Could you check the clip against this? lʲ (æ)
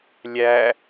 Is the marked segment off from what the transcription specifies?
no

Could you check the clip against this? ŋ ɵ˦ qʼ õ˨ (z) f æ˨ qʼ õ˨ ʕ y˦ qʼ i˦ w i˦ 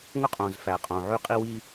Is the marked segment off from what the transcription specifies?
no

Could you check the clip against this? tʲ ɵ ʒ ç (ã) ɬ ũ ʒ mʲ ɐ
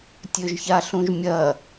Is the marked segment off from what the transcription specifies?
yes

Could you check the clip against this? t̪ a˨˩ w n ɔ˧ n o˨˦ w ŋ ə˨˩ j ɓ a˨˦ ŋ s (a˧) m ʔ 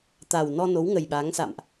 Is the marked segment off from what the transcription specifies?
yes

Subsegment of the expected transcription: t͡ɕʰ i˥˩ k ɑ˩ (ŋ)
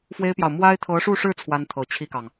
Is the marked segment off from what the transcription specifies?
no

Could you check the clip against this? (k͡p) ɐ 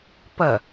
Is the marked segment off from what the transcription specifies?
yes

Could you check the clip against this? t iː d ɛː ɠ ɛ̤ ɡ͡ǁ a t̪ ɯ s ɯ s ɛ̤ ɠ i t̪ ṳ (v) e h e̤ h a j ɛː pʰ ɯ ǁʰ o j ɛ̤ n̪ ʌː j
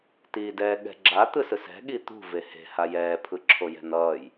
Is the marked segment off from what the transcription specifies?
no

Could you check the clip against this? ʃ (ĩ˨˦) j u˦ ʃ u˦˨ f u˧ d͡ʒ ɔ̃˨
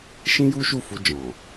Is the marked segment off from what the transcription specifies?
yes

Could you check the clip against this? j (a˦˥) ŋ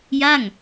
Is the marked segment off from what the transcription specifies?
yes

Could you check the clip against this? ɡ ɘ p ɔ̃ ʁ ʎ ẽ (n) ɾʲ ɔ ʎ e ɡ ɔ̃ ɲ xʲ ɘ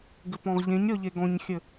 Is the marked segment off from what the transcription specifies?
yes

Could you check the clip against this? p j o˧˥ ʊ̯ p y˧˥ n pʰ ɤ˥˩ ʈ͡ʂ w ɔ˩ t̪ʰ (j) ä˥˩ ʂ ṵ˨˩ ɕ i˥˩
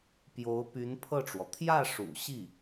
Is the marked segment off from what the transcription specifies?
no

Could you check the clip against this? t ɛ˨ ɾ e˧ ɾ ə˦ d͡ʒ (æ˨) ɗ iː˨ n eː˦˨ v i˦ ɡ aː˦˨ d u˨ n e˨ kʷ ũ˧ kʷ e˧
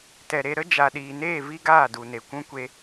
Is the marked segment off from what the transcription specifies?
yes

